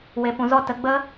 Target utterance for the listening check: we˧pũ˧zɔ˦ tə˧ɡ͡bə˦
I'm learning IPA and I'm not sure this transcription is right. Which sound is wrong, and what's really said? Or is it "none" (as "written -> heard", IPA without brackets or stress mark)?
none